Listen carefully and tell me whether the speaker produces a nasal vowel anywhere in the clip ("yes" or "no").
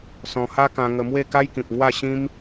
yes